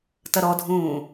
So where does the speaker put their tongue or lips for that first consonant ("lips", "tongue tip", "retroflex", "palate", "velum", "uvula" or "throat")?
tongue tip